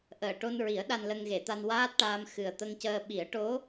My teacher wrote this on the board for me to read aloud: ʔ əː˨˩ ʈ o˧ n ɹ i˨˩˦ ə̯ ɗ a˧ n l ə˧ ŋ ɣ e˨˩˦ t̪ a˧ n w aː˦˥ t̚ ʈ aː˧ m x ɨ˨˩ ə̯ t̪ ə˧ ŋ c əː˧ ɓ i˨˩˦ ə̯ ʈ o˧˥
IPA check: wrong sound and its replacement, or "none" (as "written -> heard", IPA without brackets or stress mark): none